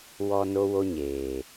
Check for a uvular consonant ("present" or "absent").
absent